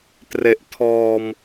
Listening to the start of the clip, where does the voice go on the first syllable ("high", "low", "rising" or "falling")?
low